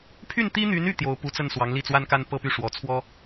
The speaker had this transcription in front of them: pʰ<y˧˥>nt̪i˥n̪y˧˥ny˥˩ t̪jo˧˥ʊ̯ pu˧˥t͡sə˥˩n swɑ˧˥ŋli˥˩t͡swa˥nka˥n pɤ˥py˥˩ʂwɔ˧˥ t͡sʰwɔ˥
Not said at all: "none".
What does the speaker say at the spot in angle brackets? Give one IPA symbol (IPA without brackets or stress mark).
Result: y˥˩